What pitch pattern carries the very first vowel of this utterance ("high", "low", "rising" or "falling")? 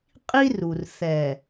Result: high